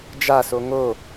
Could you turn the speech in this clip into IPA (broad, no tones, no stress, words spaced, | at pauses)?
d͡ʒaso ŋo